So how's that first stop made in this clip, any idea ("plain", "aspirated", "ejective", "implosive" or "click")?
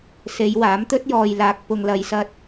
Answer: plain